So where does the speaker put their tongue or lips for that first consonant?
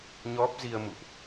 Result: palate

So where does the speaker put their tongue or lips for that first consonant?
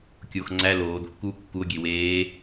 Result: velum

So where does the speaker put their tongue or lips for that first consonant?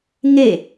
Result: velum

